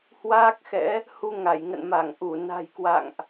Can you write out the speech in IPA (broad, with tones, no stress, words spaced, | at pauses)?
hwaː˦˥k̚xɛ̰˧˥ | hu˧ ŋa˧˩jŋə̰˧˨n ma˧˩ŋʔu˧˩ na̤˨˩jkwa̰˧˨ŋʔ